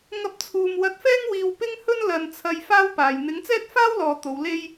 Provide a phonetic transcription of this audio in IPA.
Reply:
ŋ ɐ˧ p̚ t͡sʰ uː˨ m w ɐ˧ t̚ f ɛː˥ ŋ w iː˧ w p ɪ˥ ŋ h ɵ˥ n l ɐ˨ n t͡sʰ ɐ˧ j f aː˥ w p aː˨ j n̪ ɪ˨˥ ŋ t͡s ɛː˥ t̚ f aː˥ w l ɔː˨ t̪ o˨˧ w l e˥ j

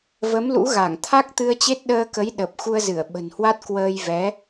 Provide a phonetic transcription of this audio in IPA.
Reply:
v ə˨˦ m l ṵ˧˥ ɣ a˧˩ ŋ t̪ʰ a˦˥ k̚ t̪ ɨ˧ ə̯ t͡ɕ e˦˥ t̚ ɗ əː˧ k ə˨˦ j ɗ ə˨˩ p̚ x u˧ ə̯ z ɨ˧˩ ə̯ ɓ ə̤˨˩ n h w a˦˥ t̚ k w əː˧ j v ɛ˨˦

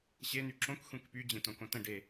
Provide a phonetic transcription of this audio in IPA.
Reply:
ɕ e n̪ y ǁ õ k xʷ ẽ k p y d͡ʑ ẽ t õ k õ t ə̃ ɖ e

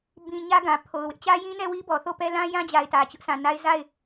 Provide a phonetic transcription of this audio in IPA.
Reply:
b ĩ˨ ɲ ä˦ ɡ ã˨ pʰ o˨ ʊ̯ w ɪ˦ ʔ t͡ɕ ä˦ j ĩ˦ n ɛ˦˨ w i˦ b ɔ˨ θ o˦˨ p ɛ˦ l ã˦ j ã˦ d͡ʑ a˨ ɪ̯ t ä˨ t͡ɕ ʊ˦ ʔ sʰ ã˨ n a˦ ɪ̯ z a˦˨ ɪ̯

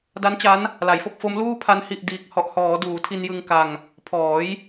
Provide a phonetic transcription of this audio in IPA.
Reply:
d a˦˥ n t͡ɕ a˦˥ n | l a˩˦ j f o˥˩ k̚ f o˦˥ m l uː˥˩ pʰ a˦˥ n h i˨˩ ʔ d iː˨˩ k̚ h ɔ˨˩ ʔ h ɔː˩˦ d uː˩˦ tʰ i˧ n j ɯ˧ ŋ k a˧ ŋ | pʰ ɔː˩˦ j

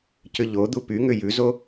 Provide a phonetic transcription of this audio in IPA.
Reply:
c ʏ ʎ o d̪ u p y ŋ ʏ j ʉ z o

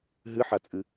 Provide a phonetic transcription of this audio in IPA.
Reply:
ɦ ɨ ħ a t͡sʼ ɨ

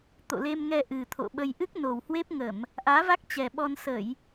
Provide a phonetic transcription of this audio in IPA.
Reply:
t̪ o̰˧˨ l e˧ m ŋ ɛ˧ ʔ ɨ˨˩ t̪ʰ o̰˧˨ ɓ ə˧ j ʔ ɨ˦˥ k̚ n o˨˩ w h w e˦˥ p̚ ŋ ə˧˩˨ m | ʔ aː˨˦ v a˦˥ k̚ t͡ɕ ɛ˨˩ ɓ ɔ˧ n s ə˧˩˨ j

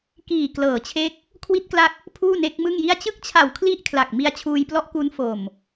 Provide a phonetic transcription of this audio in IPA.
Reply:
k iː˨˩ k l ɤː˩˦ t͡ɕʰ e˦˥ k̚ | kʰ w i˦˥ t̚ k l a˦˥ k̚ | pʰ uː˥˩ n e˦˥ k̚ m ɯ˥˩ ŋ j i˥˩ a̯ t͡ɕ ɯ˥˩ k̚ t͡ɕʰ a˨˩ w kʰ l i˥˩ ʔ kʰ l a˨˩ k̚ m i˧ a̯ t͡ɕʰ uː˧ j p l ɔ˦˥ ʔ k u˦˥ n f o˨˩ m

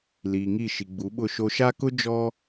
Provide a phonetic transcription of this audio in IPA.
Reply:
l iː˨ ŋ i˦˨ ʃ i˨ ɡ͡b u˨˦ ɓ ʊ˦˨ ʃ o˦ ʃ a˦ k ʊ˦ d͡ʒ ɔ˦

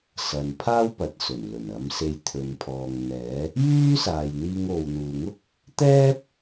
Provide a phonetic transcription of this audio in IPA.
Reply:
s ɐ˨ n pʰ aː˥ w p ɐ˨ t̚ s ɵ˨˩ n l ɵ˨˩ n ɐ˨˧ m s e˧ j t̪ʰ ɵ˨ n pʰ ɔː˨ ŋ n̪ ɛː˨˥ | j yː˥ s aː˨ j n̪ iː˧ ŋ o˨ w n̪ uː˨ ŋ ʊ˥ k̚ | t̪ ɛː˥ p̚

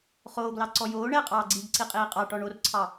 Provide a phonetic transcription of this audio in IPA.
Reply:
χ oː ɡ l ɑ ǀ ɔ j oː ɳ ɛ qʼ ɑː ɡ͡ǀ iː ɡ ǀ i qʼ iː qʼ ɑ ʈ ɔ ɳ o r ǀʰ ɑ

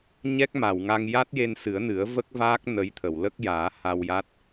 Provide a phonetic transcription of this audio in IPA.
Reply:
ɲ ɛ˦˥ k̚ m a˨˩˨ w ŋ a˧ ŋ j a˦˥ t̚ j e˧ n s ɨ˨˩˦ ə̯ n ɨ˨˩˦ ə̯ v ə˦˥ k̚ v aː˦˥ k̚ n ə˧˥ j t̪ʰ ə˨˩˨ w l ə˦˥ k̚ j aː˨˩˦ h a˧ w j a˦˥ t̚

